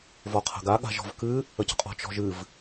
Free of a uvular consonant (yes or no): no